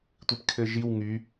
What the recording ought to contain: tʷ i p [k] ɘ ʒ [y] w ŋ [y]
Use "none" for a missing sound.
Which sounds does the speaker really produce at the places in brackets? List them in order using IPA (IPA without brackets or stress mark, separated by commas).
kʰ, i, y